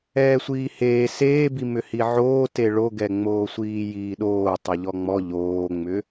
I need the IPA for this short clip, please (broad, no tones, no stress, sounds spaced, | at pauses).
ɛː sʷ iː h eː s eː b i m ʏ h i ʕ oː t e ɭ o ɡ ɛ ŋ͡m oː sʷ iː j iː ɗ oː tˤ ɤ ʎ ɔ ŋ͡m ɔ ʎ oː ŋ͡m ʏ